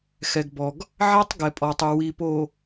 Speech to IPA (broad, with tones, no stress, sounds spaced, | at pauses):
x ɛ˨ ɡ b ɔ˨ ɡ | ʕ æ˦ tˤ ɡ ɛ˨ pʼ ɔ˨ tˤ œ˨ w i˨ p o˨